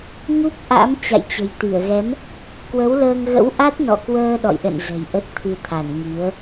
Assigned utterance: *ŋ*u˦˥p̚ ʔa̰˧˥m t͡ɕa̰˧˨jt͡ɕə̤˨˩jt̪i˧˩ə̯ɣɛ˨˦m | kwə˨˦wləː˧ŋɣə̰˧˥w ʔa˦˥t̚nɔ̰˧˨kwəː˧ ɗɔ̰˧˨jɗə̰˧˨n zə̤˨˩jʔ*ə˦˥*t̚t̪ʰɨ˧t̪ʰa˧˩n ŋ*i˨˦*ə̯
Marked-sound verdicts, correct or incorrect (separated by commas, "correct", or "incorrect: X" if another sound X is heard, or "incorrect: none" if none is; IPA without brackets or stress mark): correct, correct, correct